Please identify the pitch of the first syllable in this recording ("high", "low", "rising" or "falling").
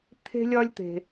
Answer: high